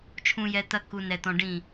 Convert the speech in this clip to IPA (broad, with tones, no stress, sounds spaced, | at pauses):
t͡ʃʰ ũ˨ j ɛ˨ t̪ ɐ˦ k u˨ n ɛ˨ t̪ ɔ̃˨ ɖ ĩ˦˨